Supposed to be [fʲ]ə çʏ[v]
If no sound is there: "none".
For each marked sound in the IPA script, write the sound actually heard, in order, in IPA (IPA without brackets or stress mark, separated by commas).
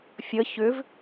fʲ, v